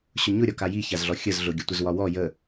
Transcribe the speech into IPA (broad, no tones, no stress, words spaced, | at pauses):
ɕʊɲʊɾʲɒka jiçazɮɔ xʲəzɮʊ ɡʲətʷəzwɒwɔ jə